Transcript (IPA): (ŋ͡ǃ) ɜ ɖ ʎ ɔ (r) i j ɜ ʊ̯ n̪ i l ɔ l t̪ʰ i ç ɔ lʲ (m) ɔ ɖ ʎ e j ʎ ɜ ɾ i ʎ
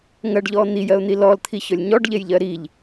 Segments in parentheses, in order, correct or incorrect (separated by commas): incorrect, incorrect, incorrect